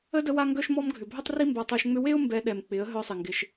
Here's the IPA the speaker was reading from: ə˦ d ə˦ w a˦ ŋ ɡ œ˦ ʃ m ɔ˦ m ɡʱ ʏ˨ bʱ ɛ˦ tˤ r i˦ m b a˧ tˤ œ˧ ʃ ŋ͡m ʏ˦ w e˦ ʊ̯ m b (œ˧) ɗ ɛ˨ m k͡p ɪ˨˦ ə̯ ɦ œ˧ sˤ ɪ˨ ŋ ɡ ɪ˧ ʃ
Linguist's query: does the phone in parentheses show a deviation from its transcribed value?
yes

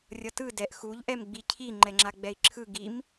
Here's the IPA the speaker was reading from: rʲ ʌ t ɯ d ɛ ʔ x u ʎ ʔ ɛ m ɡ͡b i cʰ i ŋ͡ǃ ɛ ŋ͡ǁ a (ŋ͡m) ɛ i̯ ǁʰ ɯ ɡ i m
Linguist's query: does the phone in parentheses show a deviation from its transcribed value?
yes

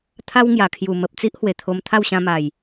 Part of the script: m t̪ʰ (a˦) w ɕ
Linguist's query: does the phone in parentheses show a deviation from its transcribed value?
yes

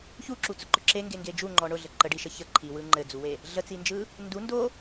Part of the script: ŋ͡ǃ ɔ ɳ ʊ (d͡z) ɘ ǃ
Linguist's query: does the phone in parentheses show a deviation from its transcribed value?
yes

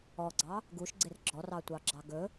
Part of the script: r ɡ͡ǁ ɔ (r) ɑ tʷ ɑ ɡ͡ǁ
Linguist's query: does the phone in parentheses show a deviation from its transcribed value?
no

